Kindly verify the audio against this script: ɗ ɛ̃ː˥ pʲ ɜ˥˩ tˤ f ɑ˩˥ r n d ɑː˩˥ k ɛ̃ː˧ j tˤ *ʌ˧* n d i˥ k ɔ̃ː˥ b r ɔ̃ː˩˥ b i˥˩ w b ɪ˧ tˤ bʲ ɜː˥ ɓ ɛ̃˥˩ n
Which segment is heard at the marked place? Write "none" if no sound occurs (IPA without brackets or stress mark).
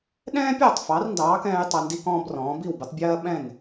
ʌ˧